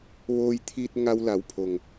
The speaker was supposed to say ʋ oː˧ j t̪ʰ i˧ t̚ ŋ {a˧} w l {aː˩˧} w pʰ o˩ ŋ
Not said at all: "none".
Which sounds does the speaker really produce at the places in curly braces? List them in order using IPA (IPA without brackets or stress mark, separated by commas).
a˧, a˩˧